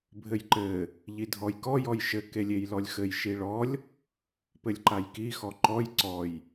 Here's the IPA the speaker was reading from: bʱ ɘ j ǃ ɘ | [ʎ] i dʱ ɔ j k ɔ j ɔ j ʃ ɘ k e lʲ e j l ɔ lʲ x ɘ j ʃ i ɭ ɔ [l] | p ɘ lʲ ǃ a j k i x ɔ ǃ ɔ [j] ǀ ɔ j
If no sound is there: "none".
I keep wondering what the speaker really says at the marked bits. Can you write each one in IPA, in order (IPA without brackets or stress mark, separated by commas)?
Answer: ʎ, lʲ, j